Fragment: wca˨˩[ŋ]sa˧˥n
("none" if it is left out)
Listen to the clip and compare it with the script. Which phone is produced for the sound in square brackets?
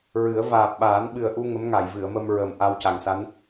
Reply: ŋ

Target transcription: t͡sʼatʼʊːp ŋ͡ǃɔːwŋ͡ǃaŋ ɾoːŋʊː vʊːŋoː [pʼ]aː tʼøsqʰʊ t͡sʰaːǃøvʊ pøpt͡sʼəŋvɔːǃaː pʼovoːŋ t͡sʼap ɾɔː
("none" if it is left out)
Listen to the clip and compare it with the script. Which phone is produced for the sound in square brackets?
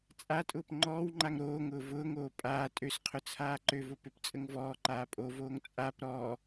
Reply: pʼ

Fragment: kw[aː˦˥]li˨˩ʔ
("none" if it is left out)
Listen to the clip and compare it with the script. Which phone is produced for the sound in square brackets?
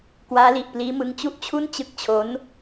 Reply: aː˦˥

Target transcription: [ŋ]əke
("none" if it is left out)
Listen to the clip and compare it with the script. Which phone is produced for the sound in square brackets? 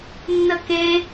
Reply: nː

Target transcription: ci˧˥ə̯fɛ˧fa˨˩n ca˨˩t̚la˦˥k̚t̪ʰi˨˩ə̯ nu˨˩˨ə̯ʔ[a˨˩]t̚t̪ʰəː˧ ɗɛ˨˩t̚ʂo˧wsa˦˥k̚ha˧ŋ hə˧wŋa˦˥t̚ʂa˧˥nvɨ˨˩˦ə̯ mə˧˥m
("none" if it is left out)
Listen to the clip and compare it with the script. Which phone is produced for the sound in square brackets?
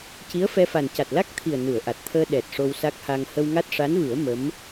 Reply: a˨˩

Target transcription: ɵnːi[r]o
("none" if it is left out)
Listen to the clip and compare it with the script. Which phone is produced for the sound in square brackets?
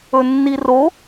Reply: r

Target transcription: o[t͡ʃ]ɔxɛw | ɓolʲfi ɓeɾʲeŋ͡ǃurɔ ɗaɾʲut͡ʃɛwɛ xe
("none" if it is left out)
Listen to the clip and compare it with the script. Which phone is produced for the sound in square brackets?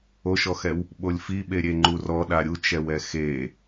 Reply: ʃ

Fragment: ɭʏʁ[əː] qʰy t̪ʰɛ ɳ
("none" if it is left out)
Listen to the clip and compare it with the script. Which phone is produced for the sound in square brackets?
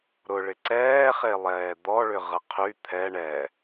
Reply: ə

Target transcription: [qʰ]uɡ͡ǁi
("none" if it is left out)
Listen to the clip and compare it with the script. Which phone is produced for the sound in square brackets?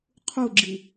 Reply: qʰ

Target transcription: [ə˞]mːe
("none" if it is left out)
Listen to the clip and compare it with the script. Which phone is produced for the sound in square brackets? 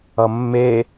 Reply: ʌ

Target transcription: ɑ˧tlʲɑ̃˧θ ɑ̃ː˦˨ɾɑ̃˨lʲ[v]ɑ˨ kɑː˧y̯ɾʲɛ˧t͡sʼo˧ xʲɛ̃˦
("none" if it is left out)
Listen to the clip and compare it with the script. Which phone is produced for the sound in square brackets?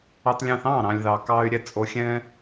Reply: ð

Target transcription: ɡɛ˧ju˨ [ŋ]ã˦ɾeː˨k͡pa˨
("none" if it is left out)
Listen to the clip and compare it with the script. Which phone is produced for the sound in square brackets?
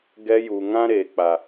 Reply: ŋ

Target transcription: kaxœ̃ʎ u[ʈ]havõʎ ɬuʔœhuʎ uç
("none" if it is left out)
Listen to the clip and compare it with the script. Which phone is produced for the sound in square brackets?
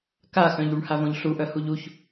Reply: ɳ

